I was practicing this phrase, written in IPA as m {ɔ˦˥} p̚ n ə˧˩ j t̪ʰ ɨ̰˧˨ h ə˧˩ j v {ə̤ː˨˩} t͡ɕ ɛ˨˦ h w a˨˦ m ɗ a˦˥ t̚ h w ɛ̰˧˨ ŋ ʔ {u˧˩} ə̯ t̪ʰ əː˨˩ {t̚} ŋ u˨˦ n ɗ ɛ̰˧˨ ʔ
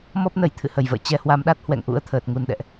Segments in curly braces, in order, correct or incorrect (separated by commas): correct, incorrect, incorrect, correct